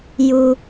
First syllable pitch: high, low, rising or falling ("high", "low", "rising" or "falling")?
high